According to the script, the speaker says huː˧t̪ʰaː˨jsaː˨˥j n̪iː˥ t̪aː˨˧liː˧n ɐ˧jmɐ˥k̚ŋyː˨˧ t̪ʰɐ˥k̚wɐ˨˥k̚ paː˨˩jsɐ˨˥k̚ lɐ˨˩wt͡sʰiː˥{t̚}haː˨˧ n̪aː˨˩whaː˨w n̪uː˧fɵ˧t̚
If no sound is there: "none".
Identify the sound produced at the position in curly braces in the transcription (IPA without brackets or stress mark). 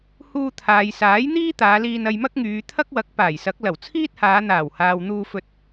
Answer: t̚